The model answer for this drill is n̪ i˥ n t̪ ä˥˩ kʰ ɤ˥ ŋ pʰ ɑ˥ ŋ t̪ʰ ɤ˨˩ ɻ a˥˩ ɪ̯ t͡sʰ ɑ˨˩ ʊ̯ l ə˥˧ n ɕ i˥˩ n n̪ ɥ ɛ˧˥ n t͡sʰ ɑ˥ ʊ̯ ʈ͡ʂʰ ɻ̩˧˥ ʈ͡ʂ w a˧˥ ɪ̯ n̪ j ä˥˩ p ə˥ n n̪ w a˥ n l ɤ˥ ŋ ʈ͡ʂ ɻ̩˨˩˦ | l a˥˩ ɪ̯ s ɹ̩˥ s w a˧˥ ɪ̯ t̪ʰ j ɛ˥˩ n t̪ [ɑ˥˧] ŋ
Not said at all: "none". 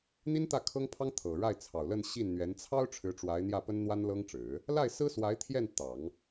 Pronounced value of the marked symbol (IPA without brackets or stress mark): ɑ˨˩˦